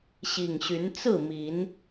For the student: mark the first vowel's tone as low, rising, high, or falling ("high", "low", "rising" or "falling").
low